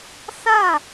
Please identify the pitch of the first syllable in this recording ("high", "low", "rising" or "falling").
falling